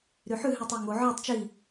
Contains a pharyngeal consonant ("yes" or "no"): yes